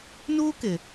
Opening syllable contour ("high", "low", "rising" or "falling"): high